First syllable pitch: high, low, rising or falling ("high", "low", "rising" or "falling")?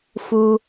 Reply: low